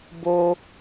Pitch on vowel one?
high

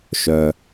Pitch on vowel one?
low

